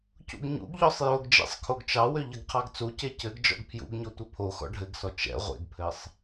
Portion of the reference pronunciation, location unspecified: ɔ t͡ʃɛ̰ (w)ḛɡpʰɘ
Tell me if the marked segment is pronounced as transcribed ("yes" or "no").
no